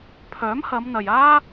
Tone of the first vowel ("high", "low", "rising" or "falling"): rising